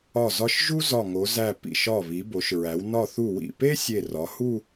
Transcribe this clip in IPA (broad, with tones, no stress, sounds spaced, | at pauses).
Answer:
ɒ˧˩ z ɒ˧ ʃ ʒ u˥ z ɒ˧˩ ŋ o˩˧ z æ˧˩ p ḭ˧˩ ʃ ɒ˧˩ β i˩˧ b o˩˧ ʃ ɹ æ˩˧ w n ɒ˧˩ θ u˧˩ w ḭ˧˩ p e˥ sʲ e˧˩ r ɒ˩˧ h u˥˧